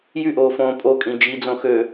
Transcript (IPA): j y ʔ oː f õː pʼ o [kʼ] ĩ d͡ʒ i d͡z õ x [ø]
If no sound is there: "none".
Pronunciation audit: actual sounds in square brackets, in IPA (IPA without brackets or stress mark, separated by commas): kʼ, ø